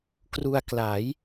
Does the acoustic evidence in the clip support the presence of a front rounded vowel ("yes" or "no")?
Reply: no